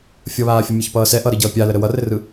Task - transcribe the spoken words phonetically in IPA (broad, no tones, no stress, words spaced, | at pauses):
fʲʌβaːfʲʌ mʲʌçpʌːsɛ ʔʌɾɘ ɟʌːpʲaləɾə wʌrɘrɯ